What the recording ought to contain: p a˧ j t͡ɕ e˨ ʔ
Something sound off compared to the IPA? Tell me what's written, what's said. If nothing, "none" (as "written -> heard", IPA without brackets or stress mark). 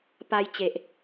none